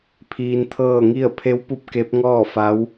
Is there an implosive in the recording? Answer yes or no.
no